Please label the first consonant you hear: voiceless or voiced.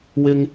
voiced